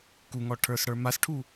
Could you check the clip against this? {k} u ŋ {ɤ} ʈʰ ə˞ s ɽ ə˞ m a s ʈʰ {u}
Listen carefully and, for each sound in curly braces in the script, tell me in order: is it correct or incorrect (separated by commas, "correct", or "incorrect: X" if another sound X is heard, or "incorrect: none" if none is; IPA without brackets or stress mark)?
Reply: correct, incorrect: ɔ, correct